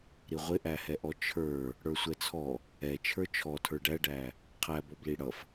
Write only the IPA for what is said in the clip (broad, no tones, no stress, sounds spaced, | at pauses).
ɾ i ʁʷ ɪ ʔ æ h ɛ ʔ ɔ t͡ʃʰ ə˞ | ɽ ə˞ sʷ ɛ t͡sʰ ɔ | ɛ t͡ʃʰ ə˞ t͡ʃʰ ɔ tʰ ə˞ ɖ æ ɖ æ | qʰ æ b ɔ b l i ɽ ʌ f